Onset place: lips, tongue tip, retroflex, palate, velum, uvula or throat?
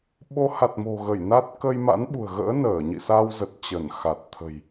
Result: lips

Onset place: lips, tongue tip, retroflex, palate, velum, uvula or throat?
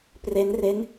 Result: lips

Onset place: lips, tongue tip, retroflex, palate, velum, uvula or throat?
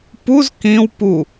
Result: lips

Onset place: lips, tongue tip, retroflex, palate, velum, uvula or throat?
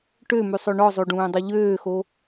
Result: retroflex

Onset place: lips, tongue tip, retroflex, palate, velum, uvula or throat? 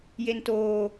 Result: palate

